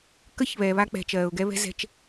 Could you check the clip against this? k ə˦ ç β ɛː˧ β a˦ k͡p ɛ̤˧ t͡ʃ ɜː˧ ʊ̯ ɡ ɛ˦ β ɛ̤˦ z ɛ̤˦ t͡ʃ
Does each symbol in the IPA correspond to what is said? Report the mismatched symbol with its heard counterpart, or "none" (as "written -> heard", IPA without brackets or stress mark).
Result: none